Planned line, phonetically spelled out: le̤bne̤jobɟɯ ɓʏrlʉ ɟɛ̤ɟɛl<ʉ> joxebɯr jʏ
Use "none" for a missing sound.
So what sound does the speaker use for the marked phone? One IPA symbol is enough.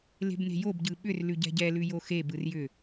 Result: ʉ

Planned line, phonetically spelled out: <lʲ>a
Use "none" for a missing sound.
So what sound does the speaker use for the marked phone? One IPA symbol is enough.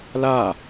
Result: l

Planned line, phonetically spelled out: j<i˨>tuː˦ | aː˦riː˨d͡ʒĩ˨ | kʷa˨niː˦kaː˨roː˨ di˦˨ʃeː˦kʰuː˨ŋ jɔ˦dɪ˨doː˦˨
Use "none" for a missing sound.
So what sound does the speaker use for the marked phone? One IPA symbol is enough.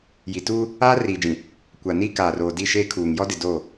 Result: i˨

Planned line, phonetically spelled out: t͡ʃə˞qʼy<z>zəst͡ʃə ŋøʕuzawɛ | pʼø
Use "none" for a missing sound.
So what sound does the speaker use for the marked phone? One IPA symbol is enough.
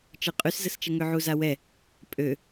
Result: s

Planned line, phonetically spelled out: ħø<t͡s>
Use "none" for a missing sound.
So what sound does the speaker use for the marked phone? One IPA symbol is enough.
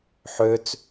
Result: t͡s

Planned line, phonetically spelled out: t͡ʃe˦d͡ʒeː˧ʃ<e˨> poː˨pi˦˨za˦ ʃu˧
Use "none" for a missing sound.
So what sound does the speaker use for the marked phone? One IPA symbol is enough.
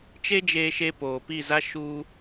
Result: e˧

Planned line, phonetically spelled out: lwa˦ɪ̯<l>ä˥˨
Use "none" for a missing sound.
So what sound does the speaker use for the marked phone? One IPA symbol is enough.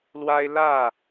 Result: l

